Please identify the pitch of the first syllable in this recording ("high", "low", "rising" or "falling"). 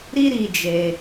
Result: high